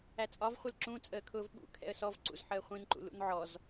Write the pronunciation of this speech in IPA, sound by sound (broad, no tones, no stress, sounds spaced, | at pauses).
æ t͡sʼ ɒ v χʷ ɪ l ǁ ũ t͡sʼ əː kʰ ʊː v ɓ ṵ kʰ ɛ̰ ə̯ s ɔ v ǀ ṵ z ħ əː χʷ ĩ n ǃ ṵ l ṵ n ʕ ɔ z